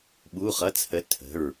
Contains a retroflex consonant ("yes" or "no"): no